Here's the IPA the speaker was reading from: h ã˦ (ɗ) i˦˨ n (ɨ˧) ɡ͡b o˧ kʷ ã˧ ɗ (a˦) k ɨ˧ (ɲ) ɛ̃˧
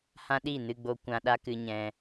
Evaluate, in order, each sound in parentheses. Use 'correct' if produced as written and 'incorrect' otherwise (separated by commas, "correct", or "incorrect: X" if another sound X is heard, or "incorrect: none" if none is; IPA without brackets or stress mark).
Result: correct, correct, correct, correct